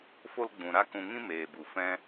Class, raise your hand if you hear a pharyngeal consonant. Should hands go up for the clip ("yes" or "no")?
no